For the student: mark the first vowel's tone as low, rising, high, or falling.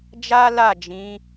high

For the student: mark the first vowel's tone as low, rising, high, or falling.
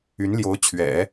rising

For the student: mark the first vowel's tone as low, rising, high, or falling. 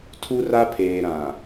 high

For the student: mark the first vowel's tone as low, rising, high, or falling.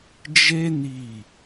high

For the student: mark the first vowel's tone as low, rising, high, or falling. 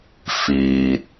low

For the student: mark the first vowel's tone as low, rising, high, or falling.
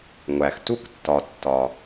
low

